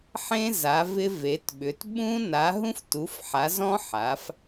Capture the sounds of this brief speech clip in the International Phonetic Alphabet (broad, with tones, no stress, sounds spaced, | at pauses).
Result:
ħ ẽ˦˥ z a˩˥ v ɪ˦˥ v e˩˥ t ɓ ʏ˩˥ t ɓ ũ˦˥ n a˩˥ ɦ ũ˦˥ f t u˩˥ f ħ a˩˥ z ɔ̃˦˥ ħ a˩˥ f